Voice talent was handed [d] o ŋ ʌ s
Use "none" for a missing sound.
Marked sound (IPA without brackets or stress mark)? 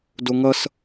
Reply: d